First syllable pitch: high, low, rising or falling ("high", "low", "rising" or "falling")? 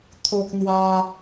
high